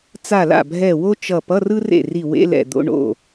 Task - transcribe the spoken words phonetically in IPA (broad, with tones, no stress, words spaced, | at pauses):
t͡sa˧˩la̰˥˩bʱɛ˧˩ wo˥t͡ʃʌ˧˩ pʌ˧˥˧rɯ˥rḛ˥˩ ri˧˩wḛ˧˥˧lɛ̰˧˩ d̪o̰˧˥˧ ɳo̰˥˩